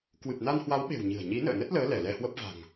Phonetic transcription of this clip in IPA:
k w ɨ˨˩ p̚ n a˧ n h w a˨˦ w ɓ e̤˨˩ w ɲ ɨ̤˨˩ ə̯ ɲ i˨˦ n ə̰ː˧˨ n ə˦˥ t̚ l əː˨˦ l ɛ˧˩ l ɛ˧ h w ə˦˥ p̚ v a̤˨˩ ŋ

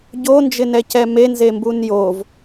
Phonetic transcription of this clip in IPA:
ɟ o n d͡ʒ ɪ n ɛ c ɛ m e n z e m b u n j o v

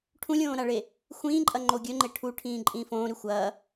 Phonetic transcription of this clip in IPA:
ʈʰ ũ lʲ õː ɾ a ɭ e | xʷ ĩː ǃʼ ɐ ŋ͡ǃ o ɡʲ ɵ ŋ͡ǃ e ʈʰ u ʈʰ ĩː ǃʼ ĩː f õː ɾ ʉ xʷ ɐː

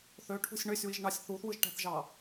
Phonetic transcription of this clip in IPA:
θ ø ʈʰ ṳ sʲ ɳ ø sʲ w i ʒ ɳ ɑ sʲ θ u θ w ɯ ʒ ʈ æ̤ θ ʒ ɑ

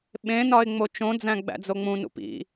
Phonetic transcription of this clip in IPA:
ɓ ẽ n ɒ ɪ̯ ŋ͡m o t͡ʃ õ d͡z æ̃ ɡ͡b æ̰ d͡z o ŋ͡m ũ n ṵ p ḭ

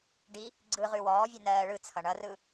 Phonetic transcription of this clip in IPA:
ɖ i | ɡ͡ǀ ɯ ʁ ʉ w ɔː vʲ ʉ n ɜː ɭ ɯ t͡sʰ ʌ ɳ ʌ r ɯ

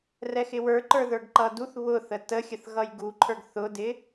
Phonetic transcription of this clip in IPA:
r ɛ x ɪ w ə˞ ǃ ə˞ ð ə˞ ɡ ǃ ʌ d u θ β ʊ θ ə t ə xʲ ə θ ɣ ʌ j ɡ u ǃʰ ə˞ ɡ θ ʊ d ɪ

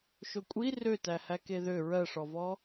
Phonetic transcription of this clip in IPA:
ʃ o kʷʼ i r ø t æ h æ k e ð ø ɹ ɜ ʂ ɔ v ɔ

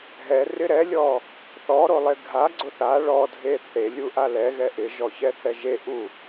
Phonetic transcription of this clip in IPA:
ɦ ɛ r ɪ ɾ ɛ lʲ ɔ | θ ɔ ɾ o lˠ e ɡʱ a ɡ͡ǀ ʊ θ a ɭ ɔ dʱ e θ e lʲ u ʔ a l ɛ ɣ ɛ ʔ ɪ ʒ ɔ ç ɛ θ ɛ ʒ e ʔ u

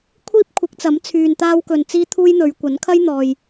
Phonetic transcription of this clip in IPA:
kʷʰ iː˥ p̚ kʷʰ ɪ˨˥ k̚ t͡s ɐ˨˥ m t͡sʰ yː˨ n t̪ aː˧ w k ɵ˨ n t͡s iː˥ t̪ʰ uː˥ j n̪ ɵ˨˧ ɥ kʷ ɐ˨˥ n kʰ ɐ˥ j n̪ ɔː˨ j

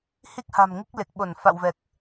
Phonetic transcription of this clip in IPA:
h i˦˥ k̚ h a̤˨˩ m ŋ i˦˥ k̚ l e˨˩ k̚ ɓ o˧˩ n f a̰˧˨ w v ɛ˨˩ k̚

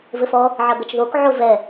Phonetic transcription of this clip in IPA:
v ɘ f ɔ | ʕ ɐ ɡ ɐ t͡ʃ ð o k ʕ o v ɛ

